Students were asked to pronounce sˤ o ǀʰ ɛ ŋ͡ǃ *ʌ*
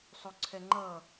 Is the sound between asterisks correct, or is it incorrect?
correct